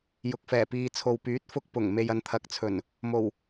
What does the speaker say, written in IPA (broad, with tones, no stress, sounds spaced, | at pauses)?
j ʊ˨ k̚ f ɛː˨˩ p iː˨ t͡sʰ o˨ w p yː˨˥ t̚ f ʊ˧ k̚ p ʊ˨˩ ŋ m e˨ j ɐ˨˧ n t̪ʰ ɐ˨ k̚ t͡sʰ ɵ˨˩ n | m o˨˩ w